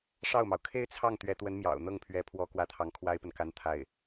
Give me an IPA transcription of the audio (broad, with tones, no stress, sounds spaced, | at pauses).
ʂ ɑ˥˩ ʊ̯ m ɑ˩ ʊ̯ kʰ e˥ ɪ̯ t͡sʰ ɑ˥˩ ŋ t̪ ɥ ɛ˧˥ t̪ w ə˧˥ n m j ɑ̰˨˩ ʊ̯ n̪ ɤ˥˩ ŋ pʰ ɥ ɛ˧˥ pʰ w ɔ˥˩ k w ä˥ t̪ʰ ɑ˧˥ ŋ kʰ w a˥ ɪ̯ p ə˨ n k a˥ n t̪ʰ a˥˩ ɪ̯